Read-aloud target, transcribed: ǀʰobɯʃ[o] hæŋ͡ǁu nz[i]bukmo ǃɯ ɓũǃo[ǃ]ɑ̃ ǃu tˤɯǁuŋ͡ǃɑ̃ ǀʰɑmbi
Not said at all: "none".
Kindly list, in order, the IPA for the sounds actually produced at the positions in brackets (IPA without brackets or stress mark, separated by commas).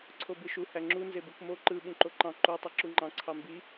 u, e, ǃ